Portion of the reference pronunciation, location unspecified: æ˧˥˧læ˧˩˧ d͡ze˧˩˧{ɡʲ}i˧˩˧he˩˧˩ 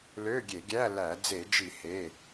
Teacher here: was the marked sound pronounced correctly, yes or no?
no